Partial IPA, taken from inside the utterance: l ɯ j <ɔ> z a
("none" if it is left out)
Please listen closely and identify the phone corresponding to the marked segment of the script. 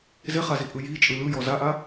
ɔ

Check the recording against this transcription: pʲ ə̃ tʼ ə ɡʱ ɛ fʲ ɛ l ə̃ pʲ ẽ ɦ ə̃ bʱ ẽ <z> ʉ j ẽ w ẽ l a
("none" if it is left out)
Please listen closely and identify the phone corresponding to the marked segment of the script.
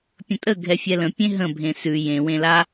s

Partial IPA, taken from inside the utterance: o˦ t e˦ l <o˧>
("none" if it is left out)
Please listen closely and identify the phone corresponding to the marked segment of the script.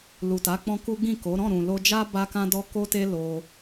o˧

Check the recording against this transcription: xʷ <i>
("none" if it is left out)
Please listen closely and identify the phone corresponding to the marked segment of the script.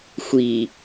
i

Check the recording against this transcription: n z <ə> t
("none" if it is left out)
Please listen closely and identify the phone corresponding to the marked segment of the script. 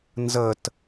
ə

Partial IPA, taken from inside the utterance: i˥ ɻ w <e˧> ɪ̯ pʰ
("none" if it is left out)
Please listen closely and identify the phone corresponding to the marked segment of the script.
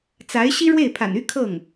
e˥˩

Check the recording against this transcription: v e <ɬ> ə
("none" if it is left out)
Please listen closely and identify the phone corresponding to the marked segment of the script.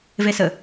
s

